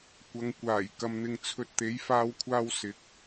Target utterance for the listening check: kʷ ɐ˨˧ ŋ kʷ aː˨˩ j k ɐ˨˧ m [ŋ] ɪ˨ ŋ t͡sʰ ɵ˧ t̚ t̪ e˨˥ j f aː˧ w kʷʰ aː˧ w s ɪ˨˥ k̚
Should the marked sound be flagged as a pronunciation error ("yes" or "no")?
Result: yes